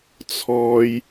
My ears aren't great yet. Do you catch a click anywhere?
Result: no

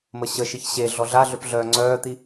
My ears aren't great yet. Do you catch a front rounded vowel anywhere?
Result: yes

